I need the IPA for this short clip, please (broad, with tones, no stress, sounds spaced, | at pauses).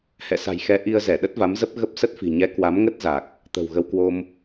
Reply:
h ɛ̰˧˨ s a̤˨˩ j x ɛ˨˦ ʔ i˧ ə̯ z ɛ˧˩ ɗ ə˦˥ t̚ v a˨˦ m z ə˦˥ p̚ ɣ ə˦˥ p̚ s ə˦˥ t̚ f i̤˨˩ ɲ ɛ˨˦ k w a˨˦ m ŋ ə˦˥ t̚ z a˨˩ k̚ | t̪ ə̤˨˩ w ɣ ə˧ w k w o˧ m